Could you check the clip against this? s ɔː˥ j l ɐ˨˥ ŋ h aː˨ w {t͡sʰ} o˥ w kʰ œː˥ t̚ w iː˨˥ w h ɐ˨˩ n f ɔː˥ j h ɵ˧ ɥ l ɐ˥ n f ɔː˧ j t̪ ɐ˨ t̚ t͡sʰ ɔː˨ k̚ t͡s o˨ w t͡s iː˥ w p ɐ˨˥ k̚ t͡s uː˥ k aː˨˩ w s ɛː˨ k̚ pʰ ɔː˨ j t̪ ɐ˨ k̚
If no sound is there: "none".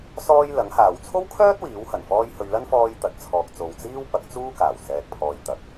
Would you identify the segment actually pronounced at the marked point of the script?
t͡sʰ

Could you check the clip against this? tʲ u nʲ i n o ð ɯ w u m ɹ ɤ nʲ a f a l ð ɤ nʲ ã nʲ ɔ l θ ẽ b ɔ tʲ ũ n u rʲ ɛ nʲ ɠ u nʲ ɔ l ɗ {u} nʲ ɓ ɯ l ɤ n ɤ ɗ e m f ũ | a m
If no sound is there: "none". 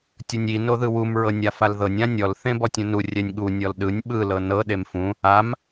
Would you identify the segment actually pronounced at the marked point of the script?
ɯ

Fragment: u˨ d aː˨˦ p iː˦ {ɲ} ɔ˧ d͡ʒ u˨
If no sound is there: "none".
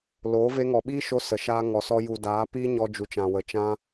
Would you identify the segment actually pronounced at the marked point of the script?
ɲ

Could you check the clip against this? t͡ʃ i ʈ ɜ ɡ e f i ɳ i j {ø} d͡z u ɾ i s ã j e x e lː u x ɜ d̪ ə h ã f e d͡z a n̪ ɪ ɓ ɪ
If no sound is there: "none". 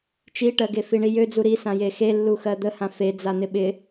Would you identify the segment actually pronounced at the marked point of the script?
ø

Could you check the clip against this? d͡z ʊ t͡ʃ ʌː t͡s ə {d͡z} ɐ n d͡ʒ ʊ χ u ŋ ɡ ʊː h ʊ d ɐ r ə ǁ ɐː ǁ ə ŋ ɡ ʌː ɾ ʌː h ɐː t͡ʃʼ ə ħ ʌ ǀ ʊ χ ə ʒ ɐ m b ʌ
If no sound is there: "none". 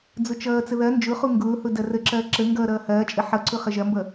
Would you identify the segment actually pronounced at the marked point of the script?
ð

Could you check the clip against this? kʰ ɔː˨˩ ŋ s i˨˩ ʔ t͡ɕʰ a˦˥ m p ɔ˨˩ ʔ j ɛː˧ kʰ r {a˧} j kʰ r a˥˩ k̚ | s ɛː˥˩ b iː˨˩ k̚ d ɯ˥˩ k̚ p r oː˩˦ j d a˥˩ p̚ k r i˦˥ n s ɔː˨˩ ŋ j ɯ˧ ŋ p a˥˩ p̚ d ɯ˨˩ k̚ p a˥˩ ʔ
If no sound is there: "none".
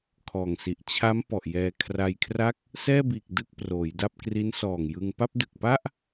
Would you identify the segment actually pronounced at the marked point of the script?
a˧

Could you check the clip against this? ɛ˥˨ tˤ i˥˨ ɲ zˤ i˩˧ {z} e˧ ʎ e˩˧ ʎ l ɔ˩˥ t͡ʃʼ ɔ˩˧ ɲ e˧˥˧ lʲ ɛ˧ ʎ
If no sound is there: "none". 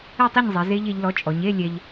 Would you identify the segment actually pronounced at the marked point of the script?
z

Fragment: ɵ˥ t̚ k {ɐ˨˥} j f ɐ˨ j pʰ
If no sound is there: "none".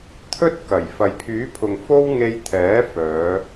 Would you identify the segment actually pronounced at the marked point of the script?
ɐ˨˩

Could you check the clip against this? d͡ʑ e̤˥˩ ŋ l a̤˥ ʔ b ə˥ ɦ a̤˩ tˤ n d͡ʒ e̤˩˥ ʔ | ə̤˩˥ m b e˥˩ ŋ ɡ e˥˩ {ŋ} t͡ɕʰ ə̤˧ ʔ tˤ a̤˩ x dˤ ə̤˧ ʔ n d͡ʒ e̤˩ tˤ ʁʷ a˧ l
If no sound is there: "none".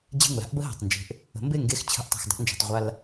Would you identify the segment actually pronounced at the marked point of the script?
x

